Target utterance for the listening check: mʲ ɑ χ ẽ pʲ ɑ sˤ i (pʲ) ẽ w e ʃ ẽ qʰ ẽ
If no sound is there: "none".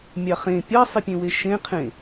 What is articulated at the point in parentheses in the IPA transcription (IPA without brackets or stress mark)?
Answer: pʲ